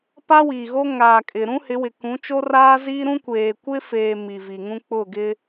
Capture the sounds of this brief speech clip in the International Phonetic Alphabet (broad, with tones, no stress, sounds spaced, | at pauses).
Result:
p a˦ w i˨ ɣ o˦ ŋ aː˨ kʼ ɪ˨ ɾ ũ˦ h ɪ˨˦ w ɪ˨ k ũ˨˦ t͡ʃ o˦ r aː˦ z iː˦ ɾ ũ˦ kʷ eː˨ kʷ ɪ˦ f eː˨ m i˨ v i˨ ŋ ũ˦ k͡p ʊ˦˨ ɡ ɪ˦